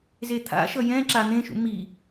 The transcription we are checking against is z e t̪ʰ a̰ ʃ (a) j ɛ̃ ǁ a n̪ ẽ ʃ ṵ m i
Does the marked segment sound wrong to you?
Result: yes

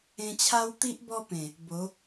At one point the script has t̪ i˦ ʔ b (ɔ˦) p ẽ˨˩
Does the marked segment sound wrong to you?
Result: no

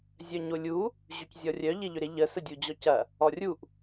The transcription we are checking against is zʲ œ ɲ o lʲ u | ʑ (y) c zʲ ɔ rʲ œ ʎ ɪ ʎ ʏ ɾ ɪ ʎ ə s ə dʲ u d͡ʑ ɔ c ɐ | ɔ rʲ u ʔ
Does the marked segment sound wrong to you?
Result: no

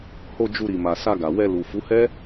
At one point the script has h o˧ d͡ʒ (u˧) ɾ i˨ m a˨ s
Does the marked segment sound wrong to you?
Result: no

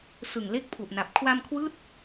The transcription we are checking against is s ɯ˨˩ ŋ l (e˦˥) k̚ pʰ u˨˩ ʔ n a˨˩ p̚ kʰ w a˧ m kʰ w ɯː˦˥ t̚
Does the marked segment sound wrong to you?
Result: no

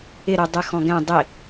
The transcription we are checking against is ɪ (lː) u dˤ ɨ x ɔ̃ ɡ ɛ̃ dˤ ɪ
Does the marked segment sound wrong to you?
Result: yes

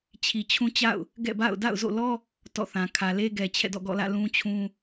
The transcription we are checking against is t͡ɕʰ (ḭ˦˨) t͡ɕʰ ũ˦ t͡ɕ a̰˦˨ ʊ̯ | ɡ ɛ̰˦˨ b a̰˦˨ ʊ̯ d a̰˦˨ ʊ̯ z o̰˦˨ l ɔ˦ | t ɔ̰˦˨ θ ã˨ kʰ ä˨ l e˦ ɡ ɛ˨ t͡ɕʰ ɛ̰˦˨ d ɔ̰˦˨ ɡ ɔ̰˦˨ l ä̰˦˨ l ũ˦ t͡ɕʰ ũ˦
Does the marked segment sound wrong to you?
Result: yes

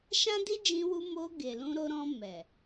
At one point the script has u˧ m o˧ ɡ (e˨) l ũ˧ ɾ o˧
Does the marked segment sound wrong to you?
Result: no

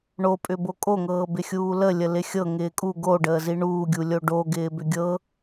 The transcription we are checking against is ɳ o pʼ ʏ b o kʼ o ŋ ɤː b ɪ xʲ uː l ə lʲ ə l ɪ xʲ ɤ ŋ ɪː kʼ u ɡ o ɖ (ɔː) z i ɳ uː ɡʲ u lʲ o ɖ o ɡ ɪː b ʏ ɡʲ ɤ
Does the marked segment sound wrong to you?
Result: yes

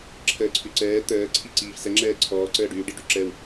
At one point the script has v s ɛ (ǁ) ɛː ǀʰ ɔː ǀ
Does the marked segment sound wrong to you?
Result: yes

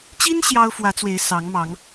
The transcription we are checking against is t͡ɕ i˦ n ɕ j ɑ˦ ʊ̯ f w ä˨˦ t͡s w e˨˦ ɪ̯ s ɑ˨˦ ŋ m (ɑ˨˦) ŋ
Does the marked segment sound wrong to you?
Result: no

